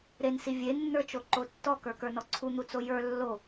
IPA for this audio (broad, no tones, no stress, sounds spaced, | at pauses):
ɾ e n s i vʲ e nː ə˞ t͡ʃ o ǃ o tː ɔ k ə˞ k ə˞ n ɔ ǀʰ u n̪ u t͡s o j ə˞ lː o